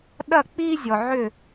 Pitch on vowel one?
falling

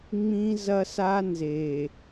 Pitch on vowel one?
high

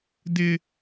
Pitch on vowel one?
high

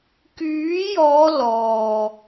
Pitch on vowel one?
rising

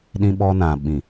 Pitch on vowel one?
high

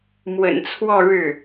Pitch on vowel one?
low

